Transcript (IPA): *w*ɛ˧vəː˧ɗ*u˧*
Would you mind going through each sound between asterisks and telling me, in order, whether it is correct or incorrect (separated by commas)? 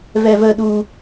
incorrect, correct